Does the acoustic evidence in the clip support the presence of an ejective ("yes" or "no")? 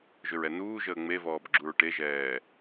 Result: no